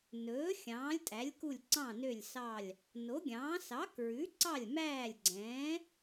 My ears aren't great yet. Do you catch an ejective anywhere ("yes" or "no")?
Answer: yes